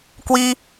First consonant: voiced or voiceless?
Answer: voiceless